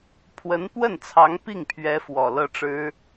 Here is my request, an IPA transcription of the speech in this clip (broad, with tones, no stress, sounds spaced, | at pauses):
pʰ w ə˧˥ n p w ə˥˩ n t͡sʰ ɑ˧˥ ŋ p i˥˩ ŋ pʰ ɥ ɛ˧˥ f w ɔ˨˩ l ɤ˥˩ ʈ͡ʂ ɻ̩˥